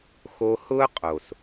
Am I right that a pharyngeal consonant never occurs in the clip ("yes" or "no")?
yes